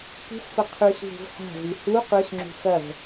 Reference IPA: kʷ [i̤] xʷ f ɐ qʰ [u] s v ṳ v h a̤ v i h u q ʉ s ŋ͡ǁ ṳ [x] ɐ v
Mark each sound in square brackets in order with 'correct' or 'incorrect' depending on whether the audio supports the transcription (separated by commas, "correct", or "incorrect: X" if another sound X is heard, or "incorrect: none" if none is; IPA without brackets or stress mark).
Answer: correct, incorrect: ʉ, correct